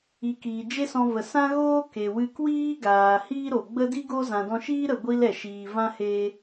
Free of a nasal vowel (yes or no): no